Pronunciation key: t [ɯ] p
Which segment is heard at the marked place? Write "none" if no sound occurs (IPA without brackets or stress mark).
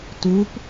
u